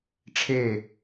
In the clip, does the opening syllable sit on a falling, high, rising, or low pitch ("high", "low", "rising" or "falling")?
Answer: falling